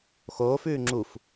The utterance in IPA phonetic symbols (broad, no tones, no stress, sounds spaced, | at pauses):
x oː f ʉː ŋ͡ǁ u f